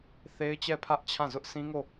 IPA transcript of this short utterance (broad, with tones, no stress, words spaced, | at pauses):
θe˦ɪ̯t͡ɕɛ˦˨pʰä˦ʔ t͡ɕʰã˦˨zʊ˦ʔ sʰĩ˦ŋo˦˨